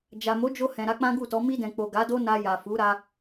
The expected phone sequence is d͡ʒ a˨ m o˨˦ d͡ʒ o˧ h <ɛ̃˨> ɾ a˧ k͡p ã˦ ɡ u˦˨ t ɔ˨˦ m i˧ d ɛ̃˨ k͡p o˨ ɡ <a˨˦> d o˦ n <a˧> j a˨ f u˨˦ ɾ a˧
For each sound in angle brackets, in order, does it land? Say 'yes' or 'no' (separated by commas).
yes, yes, yes